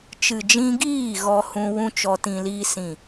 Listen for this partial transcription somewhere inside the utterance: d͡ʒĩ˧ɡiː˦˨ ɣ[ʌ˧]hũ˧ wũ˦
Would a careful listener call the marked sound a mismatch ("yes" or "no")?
yes